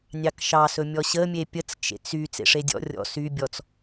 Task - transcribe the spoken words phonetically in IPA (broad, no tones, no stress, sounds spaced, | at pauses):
nʲ ɑ k ʃ ɑ s ɵ mʲ ɔ ɕ ə mʲ e pʲ ə t͡s t͡ʃ ḛ t͡s y t͡s ḛ ʂ e dʲ ɔ̰ rʲ ɔ̰ s y bʲ ɔ t͡s